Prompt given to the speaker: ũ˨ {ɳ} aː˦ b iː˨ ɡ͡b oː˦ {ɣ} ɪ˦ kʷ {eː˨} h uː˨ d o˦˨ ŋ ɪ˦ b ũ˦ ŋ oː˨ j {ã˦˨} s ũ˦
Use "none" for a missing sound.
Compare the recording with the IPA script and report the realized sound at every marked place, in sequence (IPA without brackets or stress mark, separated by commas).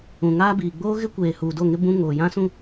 ŋ, ɣ, eː˨, ã˦